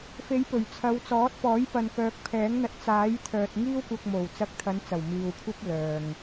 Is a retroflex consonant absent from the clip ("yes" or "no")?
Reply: yes